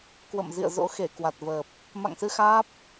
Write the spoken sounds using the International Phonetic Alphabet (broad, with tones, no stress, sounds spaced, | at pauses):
k w ə̰˧˨ m z ḭ˧˨ ə̯ z o̰˧˥ x e˧˩ k w a˨˩ t̚ v əː˨˩ p̚ | m a̰˧˨ ŋ s ɨ˧ x aː˦˥ p̚